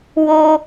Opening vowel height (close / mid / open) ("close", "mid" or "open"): mid